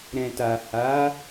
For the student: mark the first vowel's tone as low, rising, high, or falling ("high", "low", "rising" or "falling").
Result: low